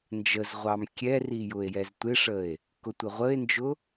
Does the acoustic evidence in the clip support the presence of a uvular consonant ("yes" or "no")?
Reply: yes